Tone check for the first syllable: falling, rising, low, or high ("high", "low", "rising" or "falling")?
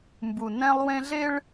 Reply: low